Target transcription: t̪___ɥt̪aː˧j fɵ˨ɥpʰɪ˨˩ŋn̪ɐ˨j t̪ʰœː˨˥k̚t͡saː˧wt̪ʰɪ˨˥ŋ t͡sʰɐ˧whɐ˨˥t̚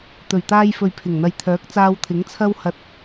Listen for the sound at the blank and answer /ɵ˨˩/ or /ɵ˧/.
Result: ɵ˨˩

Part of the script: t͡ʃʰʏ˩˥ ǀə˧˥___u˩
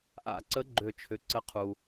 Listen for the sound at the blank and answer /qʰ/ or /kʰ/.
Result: qʰ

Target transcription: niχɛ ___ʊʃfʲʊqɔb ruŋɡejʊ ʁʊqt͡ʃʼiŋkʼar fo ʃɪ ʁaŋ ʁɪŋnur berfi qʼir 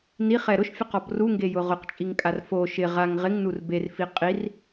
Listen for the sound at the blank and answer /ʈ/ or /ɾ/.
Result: ɾ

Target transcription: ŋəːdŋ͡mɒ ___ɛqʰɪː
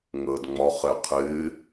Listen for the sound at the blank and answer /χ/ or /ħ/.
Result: χ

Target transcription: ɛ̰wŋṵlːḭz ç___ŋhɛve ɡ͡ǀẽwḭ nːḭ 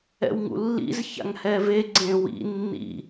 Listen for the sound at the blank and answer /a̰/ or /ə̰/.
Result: a̰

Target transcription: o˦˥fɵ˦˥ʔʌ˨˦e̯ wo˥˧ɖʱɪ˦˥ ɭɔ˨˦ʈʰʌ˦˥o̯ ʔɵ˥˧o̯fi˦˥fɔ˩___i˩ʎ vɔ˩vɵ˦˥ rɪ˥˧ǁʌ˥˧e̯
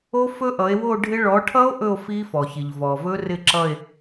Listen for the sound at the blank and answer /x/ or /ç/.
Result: ç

